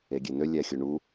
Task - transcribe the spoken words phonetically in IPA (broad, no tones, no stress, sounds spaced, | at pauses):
e ɡʲ e n ø lʲ æ xʲ u ɳ u